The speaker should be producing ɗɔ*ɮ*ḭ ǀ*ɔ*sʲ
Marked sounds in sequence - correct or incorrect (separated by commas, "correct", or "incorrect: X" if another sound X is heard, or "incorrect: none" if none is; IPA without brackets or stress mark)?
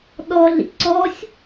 correct, correct